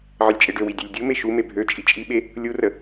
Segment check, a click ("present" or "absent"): absent